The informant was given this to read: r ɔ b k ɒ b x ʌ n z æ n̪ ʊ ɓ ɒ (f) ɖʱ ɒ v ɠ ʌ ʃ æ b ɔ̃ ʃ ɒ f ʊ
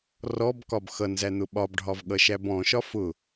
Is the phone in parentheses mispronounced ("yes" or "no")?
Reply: yes